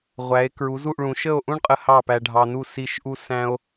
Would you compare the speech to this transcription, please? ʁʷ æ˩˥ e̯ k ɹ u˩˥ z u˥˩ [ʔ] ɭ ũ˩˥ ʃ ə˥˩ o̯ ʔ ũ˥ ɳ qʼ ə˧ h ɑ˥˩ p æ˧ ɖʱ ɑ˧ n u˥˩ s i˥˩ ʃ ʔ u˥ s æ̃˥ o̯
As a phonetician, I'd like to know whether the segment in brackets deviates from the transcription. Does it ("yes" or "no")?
no